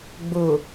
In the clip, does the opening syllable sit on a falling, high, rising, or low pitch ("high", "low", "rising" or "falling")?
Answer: low